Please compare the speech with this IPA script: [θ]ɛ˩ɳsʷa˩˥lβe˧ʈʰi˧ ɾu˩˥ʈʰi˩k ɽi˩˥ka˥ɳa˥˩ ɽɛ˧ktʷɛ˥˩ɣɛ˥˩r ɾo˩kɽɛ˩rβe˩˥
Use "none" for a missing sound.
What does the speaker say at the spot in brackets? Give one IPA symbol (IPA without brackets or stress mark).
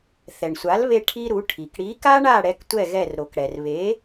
θ